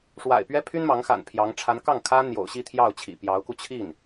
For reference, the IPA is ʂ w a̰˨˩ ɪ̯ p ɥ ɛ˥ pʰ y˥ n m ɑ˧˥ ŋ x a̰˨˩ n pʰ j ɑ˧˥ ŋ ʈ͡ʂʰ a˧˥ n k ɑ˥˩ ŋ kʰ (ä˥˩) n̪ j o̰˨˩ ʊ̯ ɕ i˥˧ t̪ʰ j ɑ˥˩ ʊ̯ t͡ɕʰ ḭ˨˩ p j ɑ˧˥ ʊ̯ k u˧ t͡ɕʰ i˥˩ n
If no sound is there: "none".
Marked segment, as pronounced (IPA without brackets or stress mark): ä˥